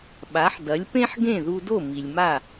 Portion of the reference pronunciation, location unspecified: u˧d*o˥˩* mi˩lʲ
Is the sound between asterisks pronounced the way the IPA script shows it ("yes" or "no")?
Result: yes